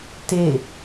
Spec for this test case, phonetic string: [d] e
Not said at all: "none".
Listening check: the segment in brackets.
t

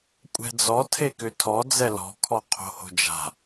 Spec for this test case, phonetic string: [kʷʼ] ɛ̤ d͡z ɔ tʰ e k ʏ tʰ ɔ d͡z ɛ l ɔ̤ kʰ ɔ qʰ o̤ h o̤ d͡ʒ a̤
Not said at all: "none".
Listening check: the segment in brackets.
kʷʼ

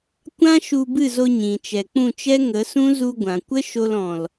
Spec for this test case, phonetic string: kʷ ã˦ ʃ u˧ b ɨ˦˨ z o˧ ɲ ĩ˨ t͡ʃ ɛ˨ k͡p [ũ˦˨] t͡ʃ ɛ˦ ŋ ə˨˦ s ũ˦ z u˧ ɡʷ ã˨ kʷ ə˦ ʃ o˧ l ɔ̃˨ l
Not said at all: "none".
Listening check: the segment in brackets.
ũ˦˨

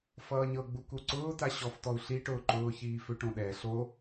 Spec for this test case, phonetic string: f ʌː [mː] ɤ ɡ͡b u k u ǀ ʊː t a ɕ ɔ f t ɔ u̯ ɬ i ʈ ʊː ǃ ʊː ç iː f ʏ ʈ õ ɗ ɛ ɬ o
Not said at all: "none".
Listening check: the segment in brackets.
ɲ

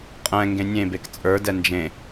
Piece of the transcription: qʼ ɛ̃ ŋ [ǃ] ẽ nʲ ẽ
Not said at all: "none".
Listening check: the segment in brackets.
ɡ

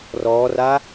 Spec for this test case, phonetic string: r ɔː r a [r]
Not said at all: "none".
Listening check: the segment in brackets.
none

